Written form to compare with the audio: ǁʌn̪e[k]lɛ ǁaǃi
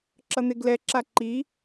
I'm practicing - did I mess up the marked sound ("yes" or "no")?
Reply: yes